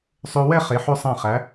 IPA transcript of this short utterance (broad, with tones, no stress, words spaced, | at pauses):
sˤø˧wɛ˥˧ χe˩˧ħø˧sˤæ̃˧˩χæ˩˧